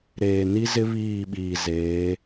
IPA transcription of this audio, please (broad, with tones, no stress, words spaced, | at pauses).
ɾeː˨ni˦zɪ˦ βiː˦˨ɓiː˨zeː˨˦